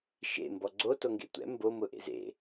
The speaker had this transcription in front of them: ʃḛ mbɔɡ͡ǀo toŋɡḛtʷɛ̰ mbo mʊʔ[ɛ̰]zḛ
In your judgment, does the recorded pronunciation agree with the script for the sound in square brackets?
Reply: no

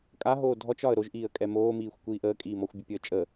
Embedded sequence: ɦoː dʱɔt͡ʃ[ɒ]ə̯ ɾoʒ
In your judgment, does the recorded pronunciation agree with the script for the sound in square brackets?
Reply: yes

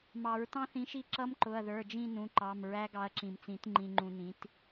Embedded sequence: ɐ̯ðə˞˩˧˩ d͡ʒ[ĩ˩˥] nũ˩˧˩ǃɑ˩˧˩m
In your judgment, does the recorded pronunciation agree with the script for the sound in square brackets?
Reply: no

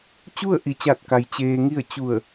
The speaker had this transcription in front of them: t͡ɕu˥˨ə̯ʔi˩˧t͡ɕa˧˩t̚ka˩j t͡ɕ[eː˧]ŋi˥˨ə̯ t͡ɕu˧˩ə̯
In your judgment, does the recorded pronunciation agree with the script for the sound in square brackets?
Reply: yes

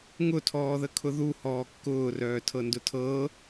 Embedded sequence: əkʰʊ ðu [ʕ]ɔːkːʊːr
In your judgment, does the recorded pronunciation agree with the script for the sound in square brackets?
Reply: no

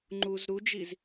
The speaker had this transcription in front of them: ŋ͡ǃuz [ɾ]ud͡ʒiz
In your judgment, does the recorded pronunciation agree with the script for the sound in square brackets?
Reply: yes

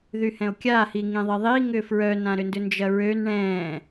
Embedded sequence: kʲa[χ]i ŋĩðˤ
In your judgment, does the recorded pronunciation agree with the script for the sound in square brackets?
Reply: no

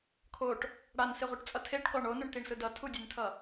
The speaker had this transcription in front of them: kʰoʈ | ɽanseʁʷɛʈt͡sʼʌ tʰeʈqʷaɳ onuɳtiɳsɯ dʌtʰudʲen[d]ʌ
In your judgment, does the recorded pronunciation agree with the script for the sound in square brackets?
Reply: no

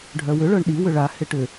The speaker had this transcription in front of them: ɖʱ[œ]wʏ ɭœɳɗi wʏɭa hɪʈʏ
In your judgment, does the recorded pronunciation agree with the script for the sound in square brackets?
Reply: yes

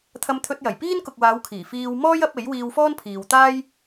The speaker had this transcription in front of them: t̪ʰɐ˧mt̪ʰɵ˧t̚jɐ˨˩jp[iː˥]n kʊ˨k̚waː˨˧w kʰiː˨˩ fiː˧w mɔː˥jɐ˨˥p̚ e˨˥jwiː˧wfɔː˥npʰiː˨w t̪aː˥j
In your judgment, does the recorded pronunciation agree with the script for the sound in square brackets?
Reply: yes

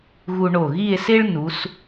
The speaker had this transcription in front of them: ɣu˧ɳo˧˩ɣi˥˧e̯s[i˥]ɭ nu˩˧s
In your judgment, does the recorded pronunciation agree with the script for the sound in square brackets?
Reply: no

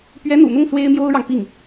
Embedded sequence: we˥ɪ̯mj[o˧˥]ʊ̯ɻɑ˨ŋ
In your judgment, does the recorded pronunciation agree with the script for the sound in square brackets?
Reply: no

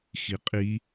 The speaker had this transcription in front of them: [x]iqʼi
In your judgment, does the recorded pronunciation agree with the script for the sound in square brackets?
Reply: yes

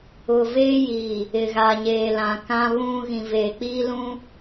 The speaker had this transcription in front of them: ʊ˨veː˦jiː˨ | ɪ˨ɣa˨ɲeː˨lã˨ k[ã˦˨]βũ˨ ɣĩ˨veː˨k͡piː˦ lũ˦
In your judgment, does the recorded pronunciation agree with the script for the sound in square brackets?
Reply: no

